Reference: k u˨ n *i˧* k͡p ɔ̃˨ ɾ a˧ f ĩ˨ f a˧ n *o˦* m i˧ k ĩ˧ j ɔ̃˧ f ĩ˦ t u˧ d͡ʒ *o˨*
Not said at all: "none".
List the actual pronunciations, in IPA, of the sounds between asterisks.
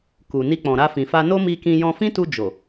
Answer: i˧, o˦, o˨

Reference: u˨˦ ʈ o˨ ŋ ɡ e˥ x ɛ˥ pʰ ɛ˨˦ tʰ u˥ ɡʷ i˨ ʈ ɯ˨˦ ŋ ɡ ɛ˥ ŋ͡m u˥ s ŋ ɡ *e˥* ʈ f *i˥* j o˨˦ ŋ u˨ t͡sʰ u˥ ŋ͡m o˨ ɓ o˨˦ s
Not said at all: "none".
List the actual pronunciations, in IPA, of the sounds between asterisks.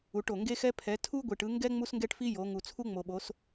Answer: ɛ˥, i˥

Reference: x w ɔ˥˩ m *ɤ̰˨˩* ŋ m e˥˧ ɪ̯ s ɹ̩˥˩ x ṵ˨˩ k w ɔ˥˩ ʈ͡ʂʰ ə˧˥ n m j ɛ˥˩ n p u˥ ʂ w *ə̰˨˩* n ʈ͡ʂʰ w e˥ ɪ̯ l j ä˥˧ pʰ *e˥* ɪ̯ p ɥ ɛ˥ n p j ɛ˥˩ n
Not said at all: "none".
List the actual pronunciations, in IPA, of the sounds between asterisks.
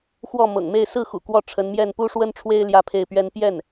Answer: ɤ̰˨˩, ə˥, e˥˩

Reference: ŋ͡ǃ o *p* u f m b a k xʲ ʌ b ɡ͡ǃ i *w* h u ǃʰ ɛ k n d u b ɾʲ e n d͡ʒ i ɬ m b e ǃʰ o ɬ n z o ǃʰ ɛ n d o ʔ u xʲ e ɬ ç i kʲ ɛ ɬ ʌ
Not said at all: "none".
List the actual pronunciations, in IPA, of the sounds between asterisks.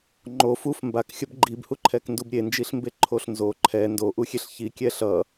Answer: f, b

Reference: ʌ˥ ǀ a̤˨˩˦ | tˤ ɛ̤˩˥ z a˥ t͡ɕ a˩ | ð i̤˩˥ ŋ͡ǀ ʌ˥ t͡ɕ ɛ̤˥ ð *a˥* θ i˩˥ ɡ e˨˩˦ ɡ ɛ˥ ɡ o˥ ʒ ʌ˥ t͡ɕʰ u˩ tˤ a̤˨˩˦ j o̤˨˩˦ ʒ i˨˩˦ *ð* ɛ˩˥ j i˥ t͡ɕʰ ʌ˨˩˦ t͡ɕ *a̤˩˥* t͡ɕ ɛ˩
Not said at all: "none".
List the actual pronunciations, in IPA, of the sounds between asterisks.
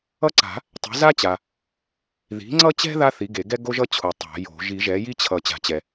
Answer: a˥, ʒ, a̤˨˩˦

